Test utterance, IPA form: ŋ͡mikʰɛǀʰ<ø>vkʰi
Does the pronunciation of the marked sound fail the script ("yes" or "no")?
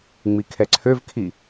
no